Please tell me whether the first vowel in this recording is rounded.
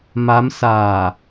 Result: no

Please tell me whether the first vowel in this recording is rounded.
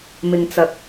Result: no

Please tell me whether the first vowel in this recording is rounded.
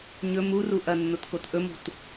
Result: yes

